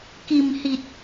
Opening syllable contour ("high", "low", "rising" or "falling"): low